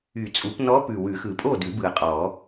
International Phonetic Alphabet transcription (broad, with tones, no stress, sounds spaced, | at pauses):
y˨˩˦ t͡sʼ u˨˩˦ p n ɔ˧˥ p ʉ˨˩ w ʉ˨˩˦ x ɯ˨˩ pʼ o˥˨ d ʉ˨˩˦ b ɯ˨˩ ɐ̯ qʼ ɔ˨˩˦